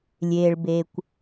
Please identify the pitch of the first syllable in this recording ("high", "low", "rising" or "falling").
low